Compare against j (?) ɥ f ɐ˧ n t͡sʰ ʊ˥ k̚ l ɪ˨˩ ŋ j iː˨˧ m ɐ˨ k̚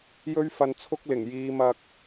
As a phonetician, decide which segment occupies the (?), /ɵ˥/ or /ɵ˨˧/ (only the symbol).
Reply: ɵ˥